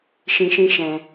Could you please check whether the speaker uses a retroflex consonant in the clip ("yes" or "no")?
no